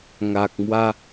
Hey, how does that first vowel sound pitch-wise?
low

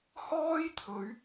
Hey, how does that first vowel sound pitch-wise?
high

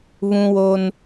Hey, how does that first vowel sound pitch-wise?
high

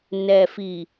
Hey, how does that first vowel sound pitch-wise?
low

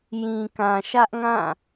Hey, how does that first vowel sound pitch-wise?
low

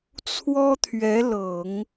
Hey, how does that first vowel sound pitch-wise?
high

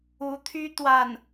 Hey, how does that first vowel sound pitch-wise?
rising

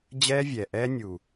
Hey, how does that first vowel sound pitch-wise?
high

